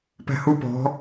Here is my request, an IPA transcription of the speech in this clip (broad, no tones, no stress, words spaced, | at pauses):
pæ̤hu pɔ̤